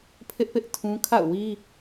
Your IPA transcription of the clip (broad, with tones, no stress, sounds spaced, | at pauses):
pʰ ɪ˦ ʔ p ɪ˦ ʔ tʰ ũ˦ kʰ a̰˦˨ ʊ̯ w i˦